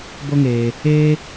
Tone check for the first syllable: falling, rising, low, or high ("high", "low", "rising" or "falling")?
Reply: high